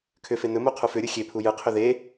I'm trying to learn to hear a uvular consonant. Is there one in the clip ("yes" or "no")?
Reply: yes